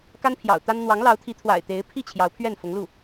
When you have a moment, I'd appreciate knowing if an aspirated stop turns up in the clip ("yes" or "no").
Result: yes